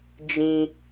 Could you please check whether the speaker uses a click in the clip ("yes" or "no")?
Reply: no